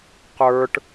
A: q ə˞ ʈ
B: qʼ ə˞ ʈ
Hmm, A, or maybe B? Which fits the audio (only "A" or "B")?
A